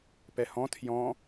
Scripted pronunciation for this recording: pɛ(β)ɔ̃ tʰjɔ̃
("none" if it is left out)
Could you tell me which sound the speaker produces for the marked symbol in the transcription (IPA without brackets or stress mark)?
h